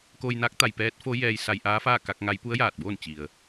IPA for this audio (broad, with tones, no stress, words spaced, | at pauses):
koː˧jnaː˧˥k̚ t̪a˩jpɛː˧˥t̚ fo˧˥ jɛː˧j sa˧jʔaː˧˥faː˥˨ ka˧k̚ ŋa˧˥j pu˧˥ə̯jaː˧˩t̚boː˥˨n t͡ɕi˩ə̯